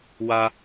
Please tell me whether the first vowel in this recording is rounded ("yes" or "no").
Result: no